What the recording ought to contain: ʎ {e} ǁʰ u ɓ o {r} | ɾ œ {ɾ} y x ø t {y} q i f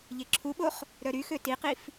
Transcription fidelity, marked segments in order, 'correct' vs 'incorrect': correct, incorrect, correct, incorrect

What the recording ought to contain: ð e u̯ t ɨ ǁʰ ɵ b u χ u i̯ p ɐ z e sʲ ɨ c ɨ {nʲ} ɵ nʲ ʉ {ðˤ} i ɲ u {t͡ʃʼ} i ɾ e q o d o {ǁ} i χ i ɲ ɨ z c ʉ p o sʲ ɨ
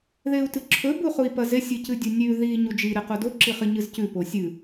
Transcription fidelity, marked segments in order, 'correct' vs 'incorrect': incorrect, incorrect, incorrect, correct

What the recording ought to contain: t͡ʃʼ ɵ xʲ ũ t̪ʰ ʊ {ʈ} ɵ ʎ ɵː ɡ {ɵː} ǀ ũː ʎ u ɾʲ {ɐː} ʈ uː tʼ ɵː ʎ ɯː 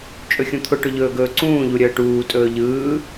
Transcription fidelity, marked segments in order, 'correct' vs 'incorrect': correct, correct, incorrect

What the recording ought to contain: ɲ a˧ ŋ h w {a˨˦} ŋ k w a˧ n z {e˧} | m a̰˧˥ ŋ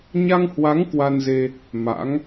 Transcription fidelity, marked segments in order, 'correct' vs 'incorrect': correct, correct

